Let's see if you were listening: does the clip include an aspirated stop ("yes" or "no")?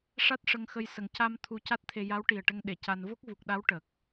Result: yes